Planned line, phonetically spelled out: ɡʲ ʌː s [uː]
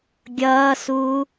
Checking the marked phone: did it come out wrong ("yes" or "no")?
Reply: no